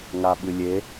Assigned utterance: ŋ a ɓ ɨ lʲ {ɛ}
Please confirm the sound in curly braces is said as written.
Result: no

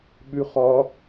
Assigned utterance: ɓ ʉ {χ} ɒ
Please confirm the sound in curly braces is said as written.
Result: yes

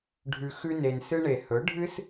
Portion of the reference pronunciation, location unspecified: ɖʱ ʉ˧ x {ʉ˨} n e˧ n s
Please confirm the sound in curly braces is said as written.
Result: no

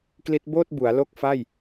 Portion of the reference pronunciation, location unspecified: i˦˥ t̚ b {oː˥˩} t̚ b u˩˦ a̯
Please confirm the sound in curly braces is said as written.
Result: yes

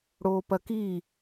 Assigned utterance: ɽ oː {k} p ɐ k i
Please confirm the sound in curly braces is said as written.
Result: no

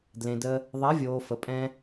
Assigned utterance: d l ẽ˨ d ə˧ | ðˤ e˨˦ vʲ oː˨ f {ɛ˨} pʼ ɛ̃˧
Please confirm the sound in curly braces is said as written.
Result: no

